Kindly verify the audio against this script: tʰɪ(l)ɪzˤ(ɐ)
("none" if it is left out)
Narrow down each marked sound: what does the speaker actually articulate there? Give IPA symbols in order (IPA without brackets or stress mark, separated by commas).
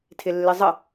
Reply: lː, ə